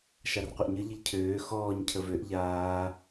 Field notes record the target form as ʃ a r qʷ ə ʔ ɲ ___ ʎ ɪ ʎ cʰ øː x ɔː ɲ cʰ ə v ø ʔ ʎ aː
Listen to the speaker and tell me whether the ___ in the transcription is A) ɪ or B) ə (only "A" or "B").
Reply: B